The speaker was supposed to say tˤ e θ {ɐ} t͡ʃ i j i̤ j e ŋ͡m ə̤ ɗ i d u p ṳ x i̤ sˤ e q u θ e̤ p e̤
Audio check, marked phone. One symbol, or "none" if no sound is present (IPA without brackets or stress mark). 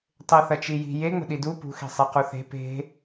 ɐ